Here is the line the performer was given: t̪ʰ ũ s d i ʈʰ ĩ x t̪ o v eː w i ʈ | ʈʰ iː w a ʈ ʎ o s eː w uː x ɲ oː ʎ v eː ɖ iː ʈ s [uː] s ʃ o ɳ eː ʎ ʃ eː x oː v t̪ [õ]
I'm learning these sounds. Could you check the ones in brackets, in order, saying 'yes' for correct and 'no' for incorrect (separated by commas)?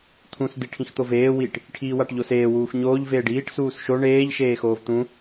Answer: yes, no